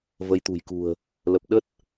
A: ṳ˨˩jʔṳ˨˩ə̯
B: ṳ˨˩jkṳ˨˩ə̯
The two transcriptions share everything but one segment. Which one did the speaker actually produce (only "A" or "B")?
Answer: B